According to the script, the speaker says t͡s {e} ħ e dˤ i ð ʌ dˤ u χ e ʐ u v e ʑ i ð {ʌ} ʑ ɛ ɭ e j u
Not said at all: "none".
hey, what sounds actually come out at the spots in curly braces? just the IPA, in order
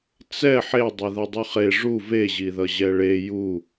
ɛ, ʌ

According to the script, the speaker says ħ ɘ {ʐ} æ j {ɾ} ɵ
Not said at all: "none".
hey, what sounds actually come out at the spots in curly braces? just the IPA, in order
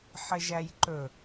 ʒ, ǃ

